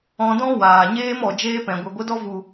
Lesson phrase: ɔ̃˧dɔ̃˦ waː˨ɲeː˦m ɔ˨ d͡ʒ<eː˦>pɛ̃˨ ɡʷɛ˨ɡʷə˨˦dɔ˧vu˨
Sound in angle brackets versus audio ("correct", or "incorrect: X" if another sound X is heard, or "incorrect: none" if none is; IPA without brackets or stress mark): correct